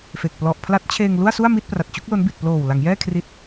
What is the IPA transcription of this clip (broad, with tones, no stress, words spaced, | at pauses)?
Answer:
fe˨˩k̚ plɔ˨˩ʔpʰla˦˥t̚t͡ɕʰeː˧ŋ lu˥˩a̯su˥˩a̯ mi˥˩t̚pra˨˩t̚ t͡ɕu˦˥k̚lo˦˥nbi˨˩t̚ ploː˨˩w la˩˦ŋjɛː˥˩ kʰri˦˥t̚